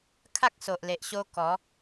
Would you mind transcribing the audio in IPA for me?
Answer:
kʰ a˦ k̚ s o˨ ʔ l e˨ ʔ ɕ o˧ k ɔ˨˦

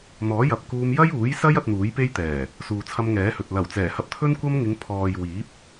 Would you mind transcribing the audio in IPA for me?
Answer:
n̪ ɔː˨˥ j ɐ˨ p̚ k uː˧ m j ɐ˥ j uː˨˥ j s ɐ˥ j ɐ˧ t̚ n̪ uː˨˥ j p e˥ j t̪ ɛː˨˩ | s uː˨ t͡sʰ ɐ˧ m ŋ ɛː˨˥ h ɵ˨ t̚ l ɐ˨˩ w t͡s ɛː˨˩ h ɐ˧ p̚ t̪ʰ ɵ˥ n kʷ ɐ˥ m ŋ ɪ˨˧ ŋ pʰ ɔː˨ j w iː˨˥ p̚

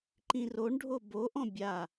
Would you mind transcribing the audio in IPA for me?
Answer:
ǃ ĩ r o ɳ ɖʱ o b o ʔ ɔ̃ bʲ a

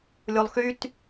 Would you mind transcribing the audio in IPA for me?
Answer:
lʲ o lˠ x y t

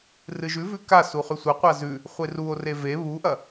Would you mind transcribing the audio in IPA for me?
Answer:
r ɨ ʒ ʉ v ʉ k a s u χ ʉ sʷ ɐ qʷ a z ʉ | χʷ e r u o̯ r e v e β u ʔ ɐ

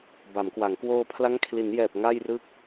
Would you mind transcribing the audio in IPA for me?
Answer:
b a˩˦ m k w a˩˦ ŋ k w oː˧ pʰ l a˦˥ ŋ kʰ l i˩˦ n j ɛː˨˩ p̚ ŋ a˥˩ j r ɯ˥˩ k̚

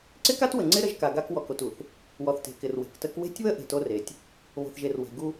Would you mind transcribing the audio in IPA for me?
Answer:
ǀ ɪ˦ k a˦ t w ə˨ ŋ͡ǀ ɪ˦ ɾ ə˦ ʒ k a˨ ɡ a˦ k w ɔ˨ k o˨ t u˨ θ | w ɔ˨ θ t e̤˨ k ɪ˨ r w e̤˨ k t ə˦ k w e̤˦ tʲ β ə˦ ʔ e̤˨ t o˦ r e˨ tʲ | β o̤˨ θ ʒ e˨ r w e̤˨ ɡ u˦

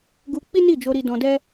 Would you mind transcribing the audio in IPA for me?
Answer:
ɡ u˧ k͡p i˦ n i˦˨ d͡ʒ o˧ ɾ i˧ d ɔ̃˧ d ɛ˦

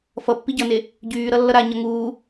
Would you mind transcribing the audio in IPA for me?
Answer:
f ʌ pː i ɟ ʌ n e | ɟ yː ɾ ʌ lː ʌ ɾ a ɲ ʌ ŋ uː

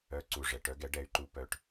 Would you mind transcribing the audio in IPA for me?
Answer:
œ˩˧ ǀ u˩ ʐ ɛ˩ ʈ œ˩˧ ɡ ɛ˩˧ ɖ ɛ˩˧ y̯ ǃ u˩˧ p œ˩ ʈ

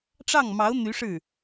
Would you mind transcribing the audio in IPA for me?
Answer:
ʈ͡ʂ ɑ˥˩ ŋ m ɑ˧˥ ʊ̯ n̪ y˧˥ ʂ ɻ̩˥˩

